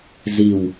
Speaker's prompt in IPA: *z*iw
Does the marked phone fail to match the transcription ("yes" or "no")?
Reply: no